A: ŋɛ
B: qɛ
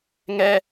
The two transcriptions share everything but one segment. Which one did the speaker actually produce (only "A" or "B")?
A